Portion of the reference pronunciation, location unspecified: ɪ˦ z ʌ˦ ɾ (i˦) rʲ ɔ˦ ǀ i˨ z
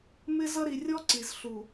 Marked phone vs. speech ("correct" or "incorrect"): incorrect